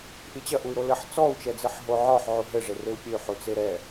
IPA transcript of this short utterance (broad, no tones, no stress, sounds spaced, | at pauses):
ʔ i t͡ɕ ɐ ʔ u y̯ ɾ o l ɘ ħ t͡s ɔ u̯ t͡ʃ ɛ d͡z ɨ ħ ɦ o ʕ ɔ ħ ʕ u ɦ ɘ ʐ e r e u̯ pʲ ɘ y̯ ħ u t͡s e ɾ ɛ